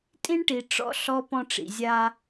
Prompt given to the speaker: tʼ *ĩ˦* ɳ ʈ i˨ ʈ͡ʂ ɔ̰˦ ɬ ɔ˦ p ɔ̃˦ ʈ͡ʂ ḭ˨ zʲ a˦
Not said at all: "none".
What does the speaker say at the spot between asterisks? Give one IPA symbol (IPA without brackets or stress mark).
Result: ĩ˦